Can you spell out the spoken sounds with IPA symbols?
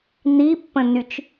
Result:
n̪ i pː ə̃ n y t͡ʃ

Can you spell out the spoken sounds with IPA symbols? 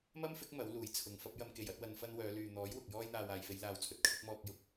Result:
m ɐ˥ m f ɪ˨˥ k̚ m ɐ˨˥ w l uː˨˩ j t͡sʰ ʊ˨ ŋ f ɐ˥ p̚ j ɐ˥ m k e˨˩ j ɐ˨˥ t̚ w ɐ˧ n f ɐ˥ n w œː˨˧ l yː˨ n̪ ɔː˨˥ j w ʊ˨ k̚ j ɔː˧ j n̪ aː˨ w aː˨ j f e˨˧ j l aː˨ w t͡sʰ ɵ˨ t̚ kʰ ɪ˨˥ k̚ m ɔː˧ k̚ j ʊ˧ k̚

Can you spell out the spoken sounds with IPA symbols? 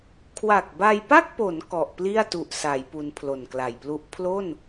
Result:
kʰ w a˨˩ k̚ b a˧ j p a˥˩ k̚ p o˩˦ n k ɔ˨˩ ʔ p l i˥˩ a̯ t u˨˩ ʔ s a˩˦ j p u˧ n pʰ l o˨˩ n k l a˨˩ j p l u˦˥ ʔ pʰ l o˥˩ n

